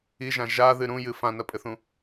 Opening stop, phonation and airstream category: ejective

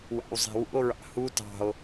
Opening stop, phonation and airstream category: plain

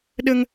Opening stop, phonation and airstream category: implosive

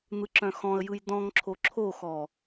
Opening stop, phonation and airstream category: click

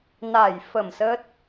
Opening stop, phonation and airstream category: plain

